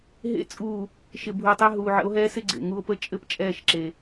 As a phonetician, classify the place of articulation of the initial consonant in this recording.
glottal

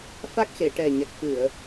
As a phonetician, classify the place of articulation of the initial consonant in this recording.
labial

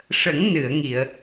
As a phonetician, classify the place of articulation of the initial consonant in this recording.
retroflex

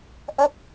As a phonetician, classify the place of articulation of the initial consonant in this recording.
glottal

